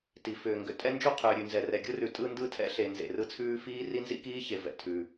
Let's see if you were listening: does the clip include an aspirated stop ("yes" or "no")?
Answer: yes